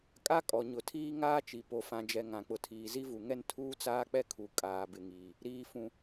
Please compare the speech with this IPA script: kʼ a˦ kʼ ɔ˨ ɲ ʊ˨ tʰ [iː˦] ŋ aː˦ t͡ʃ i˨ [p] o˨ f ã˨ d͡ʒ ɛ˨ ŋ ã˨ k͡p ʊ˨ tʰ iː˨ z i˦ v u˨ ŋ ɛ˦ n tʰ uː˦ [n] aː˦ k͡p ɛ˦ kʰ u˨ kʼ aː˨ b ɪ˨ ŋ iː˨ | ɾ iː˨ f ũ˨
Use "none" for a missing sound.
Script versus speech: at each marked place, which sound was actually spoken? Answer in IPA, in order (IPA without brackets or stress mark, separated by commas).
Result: iː˦, p, t͡s